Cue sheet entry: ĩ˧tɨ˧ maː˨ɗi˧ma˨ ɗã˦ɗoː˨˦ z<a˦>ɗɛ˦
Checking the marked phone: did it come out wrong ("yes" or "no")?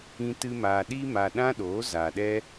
yes